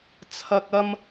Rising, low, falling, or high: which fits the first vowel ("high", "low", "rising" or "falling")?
low